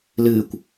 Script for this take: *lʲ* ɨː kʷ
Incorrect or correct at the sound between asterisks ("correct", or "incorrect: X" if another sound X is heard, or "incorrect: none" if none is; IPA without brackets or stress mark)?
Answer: incorrect: l